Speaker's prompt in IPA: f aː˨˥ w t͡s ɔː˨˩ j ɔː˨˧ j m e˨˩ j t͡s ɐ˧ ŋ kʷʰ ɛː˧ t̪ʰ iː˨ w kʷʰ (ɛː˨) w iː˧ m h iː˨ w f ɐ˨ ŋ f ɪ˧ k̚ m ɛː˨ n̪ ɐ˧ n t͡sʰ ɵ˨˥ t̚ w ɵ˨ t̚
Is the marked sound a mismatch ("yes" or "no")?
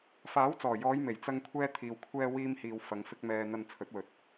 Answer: yes